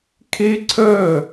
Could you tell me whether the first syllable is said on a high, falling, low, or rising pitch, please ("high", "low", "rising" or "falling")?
high